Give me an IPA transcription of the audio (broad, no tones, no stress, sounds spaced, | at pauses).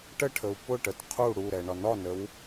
ʈ ə ʈʰ ə u̯ p ʊ ʈ ə t qʰ u ɽ u ɾ ɛ ɳ ɒ n ɒ n ə w